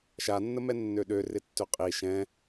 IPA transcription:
ʃ a nː ə m ɛ nː ø ɗ ø r ɪ tː ø qʼ i ʃ ɛ̃

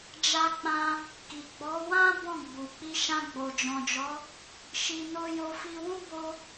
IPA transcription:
d͡ʒ a˧ k͡p ã˧ | k i˨ ɡ͡b ɔ˨˦ w ã˦ b ɔ̃˦˨ ɡ͡b u˨ k͡p i˧ ʃ ã˧ ɡ͡b o˨ d͡ʒ ɔ̃˨ d͡ʒ ɔ˨˦ | ʃ i˧ n o˧ j o˧ f i˧ w ũ˦ b o˧

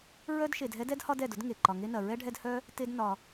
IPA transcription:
ɹ œ˥ d ʃ e˨ d ɦ ɛ˥ d ɛ˥ d h ɒ˦ d ɛ˩ d ʊ˥ d ŋ e˩ ǃ ɒ˨ ŋ e˦ n ɐ˨ ɹ ɛ˥ ɖʱ ɛ˦ d h œ˥ | t e˦ d n ɒ˨

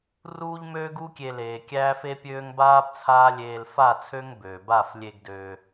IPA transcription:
r uː˦ ʎ m øː˦ ɡ u˦ kʲ e˧ l eː˧ kʲ æː˦ f e˦ pʲ øː˦ ŋ b aː˦ b t͡sʰ aː˦ lʲ eː˧ l f a˦˨ t͡sʰ ø˦ ŋ b øː˨ b a˦˨ f lʲ e˧ ɡ d ø˧

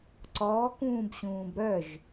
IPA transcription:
ǀ ɔː k ũː b ɕ ũː b ɾ œ ʒ

